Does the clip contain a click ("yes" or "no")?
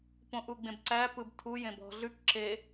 yes